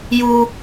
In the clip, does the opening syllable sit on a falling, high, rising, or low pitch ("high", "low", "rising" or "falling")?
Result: high